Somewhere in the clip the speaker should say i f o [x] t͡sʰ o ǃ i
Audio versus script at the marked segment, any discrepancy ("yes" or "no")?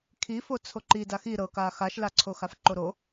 yes